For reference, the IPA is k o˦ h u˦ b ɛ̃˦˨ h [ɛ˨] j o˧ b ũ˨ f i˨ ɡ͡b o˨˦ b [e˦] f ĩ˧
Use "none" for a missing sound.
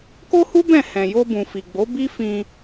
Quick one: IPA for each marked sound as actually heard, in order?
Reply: ɛ̃˨, i˦

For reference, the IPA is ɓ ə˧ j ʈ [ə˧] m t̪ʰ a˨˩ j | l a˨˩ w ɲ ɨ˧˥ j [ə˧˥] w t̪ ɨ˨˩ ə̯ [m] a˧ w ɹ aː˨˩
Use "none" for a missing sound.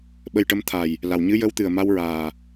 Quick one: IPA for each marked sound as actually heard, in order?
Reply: ə˧˥, ə˧˥, m

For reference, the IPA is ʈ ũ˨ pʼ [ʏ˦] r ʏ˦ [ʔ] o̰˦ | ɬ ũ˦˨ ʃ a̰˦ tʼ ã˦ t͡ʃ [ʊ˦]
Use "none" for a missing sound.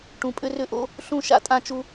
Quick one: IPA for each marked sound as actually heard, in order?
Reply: ʏ˦, ʔ, u˦

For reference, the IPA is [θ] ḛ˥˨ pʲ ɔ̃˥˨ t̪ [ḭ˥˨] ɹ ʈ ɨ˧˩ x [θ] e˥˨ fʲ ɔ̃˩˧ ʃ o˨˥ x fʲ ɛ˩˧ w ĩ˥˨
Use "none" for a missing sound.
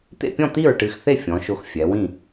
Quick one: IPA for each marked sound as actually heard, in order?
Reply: t̪, i˥˨, θ

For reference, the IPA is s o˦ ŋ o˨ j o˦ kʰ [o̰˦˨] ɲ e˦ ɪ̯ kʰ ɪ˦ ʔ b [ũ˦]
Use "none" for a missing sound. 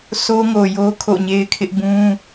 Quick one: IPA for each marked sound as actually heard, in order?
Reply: o̰˦˨, ũ˦

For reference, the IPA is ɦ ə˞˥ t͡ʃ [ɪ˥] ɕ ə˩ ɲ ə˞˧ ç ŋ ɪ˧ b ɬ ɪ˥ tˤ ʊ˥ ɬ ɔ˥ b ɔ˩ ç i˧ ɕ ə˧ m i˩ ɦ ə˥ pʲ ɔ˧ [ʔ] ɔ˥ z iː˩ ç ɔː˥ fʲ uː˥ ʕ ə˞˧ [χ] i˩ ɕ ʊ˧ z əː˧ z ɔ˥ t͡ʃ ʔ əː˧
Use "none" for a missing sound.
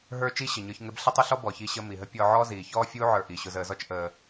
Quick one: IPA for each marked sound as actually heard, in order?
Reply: i˥, ʕ, ʔ

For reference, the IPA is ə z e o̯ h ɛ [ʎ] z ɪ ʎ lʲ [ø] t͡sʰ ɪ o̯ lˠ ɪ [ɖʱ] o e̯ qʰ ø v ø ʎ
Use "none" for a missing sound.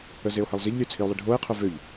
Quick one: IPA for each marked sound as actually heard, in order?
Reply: lˠ, ø, ɖʱ

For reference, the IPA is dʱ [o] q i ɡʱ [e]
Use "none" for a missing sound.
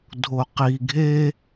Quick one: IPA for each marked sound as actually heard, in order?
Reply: o, e

